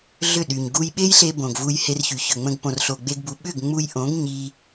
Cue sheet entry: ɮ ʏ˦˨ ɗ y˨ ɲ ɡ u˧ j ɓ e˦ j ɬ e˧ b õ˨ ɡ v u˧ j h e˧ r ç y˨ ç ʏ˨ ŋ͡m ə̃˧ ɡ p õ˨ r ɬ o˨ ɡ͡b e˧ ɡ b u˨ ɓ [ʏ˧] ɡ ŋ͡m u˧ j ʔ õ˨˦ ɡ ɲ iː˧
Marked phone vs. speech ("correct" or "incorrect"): incorrect